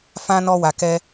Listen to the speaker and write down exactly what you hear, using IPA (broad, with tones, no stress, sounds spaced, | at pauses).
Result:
f ã˦ n ɔ˦ w a˧ k ɛ˦